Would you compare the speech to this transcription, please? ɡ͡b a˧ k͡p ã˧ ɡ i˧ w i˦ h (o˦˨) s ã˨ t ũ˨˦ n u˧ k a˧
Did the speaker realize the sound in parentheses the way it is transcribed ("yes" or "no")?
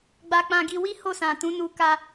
yes